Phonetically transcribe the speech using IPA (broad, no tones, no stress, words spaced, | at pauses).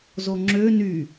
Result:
zoŋ͡ǁø ny